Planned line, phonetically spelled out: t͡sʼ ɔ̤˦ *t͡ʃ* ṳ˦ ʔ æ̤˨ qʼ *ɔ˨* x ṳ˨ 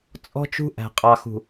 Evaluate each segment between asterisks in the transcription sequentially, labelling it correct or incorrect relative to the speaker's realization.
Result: correct, incorrect: ɑ˨

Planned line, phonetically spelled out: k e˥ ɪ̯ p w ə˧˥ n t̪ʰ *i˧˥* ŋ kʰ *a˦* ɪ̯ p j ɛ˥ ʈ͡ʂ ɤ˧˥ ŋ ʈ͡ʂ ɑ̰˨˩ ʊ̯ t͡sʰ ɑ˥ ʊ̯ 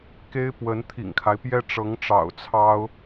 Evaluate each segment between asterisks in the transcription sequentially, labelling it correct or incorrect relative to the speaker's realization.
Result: incorrect: ḭ˨˩, correct

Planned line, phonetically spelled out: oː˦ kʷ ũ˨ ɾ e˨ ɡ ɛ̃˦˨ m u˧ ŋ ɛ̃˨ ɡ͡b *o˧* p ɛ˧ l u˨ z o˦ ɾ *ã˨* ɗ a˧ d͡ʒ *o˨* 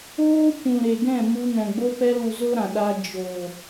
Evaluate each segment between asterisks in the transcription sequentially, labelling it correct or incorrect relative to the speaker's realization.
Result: correct, correct, correct

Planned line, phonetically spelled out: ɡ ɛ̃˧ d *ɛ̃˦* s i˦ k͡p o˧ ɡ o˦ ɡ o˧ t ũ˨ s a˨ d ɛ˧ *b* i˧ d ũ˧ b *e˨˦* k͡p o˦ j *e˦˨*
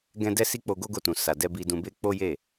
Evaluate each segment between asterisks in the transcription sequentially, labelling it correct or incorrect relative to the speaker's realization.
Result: incorrect: ɛ˦, correct, incorrect: e˦, correct

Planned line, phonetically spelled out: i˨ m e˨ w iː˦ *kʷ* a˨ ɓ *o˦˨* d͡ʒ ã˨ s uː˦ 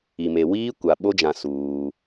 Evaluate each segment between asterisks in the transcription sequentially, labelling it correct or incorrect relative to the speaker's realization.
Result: correct, incorrect: o˦

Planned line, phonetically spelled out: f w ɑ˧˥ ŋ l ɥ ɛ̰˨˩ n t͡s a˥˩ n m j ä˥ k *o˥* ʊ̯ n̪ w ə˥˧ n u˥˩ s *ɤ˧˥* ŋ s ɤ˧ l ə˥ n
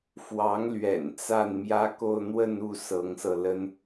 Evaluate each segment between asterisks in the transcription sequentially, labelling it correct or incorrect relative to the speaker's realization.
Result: incorrect: o˥˧, correct

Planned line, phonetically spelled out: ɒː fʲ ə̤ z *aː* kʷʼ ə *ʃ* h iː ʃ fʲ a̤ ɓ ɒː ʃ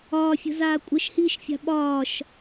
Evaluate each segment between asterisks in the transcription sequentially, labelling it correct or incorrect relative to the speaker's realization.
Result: correct, correct

